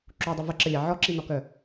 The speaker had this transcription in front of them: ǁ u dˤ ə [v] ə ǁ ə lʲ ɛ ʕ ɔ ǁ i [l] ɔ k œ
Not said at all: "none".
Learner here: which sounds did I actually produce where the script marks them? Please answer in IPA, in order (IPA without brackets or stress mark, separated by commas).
v, n